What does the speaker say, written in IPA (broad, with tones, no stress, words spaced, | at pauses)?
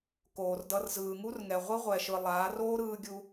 koː˨rdʌ˧r zɯː˨ŋu˦rŋɛ˨ ʁʷi˦ʁʷɛ˨ʃɯ˨ lˠaː˨˦roː˦ɾɯː˧ɡʲu˧